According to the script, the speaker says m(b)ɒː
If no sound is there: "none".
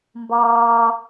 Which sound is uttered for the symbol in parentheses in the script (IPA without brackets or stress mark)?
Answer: b